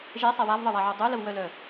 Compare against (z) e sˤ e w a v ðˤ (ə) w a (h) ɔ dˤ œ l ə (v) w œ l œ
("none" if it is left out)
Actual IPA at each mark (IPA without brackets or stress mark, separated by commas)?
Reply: ʒ, ə, ʕ, v